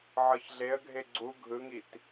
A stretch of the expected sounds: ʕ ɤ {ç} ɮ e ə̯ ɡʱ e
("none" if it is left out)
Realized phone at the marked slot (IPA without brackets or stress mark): ç